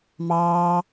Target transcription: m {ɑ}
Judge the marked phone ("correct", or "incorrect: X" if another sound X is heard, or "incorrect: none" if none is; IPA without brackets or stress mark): incorrect: ɑː